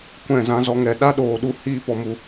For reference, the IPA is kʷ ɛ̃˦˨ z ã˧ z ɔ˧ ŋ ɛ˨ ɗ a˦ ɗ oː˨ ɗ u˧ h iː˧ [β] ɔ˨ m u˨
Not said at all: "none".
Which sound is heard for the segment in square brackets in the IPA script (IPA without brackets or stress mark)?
p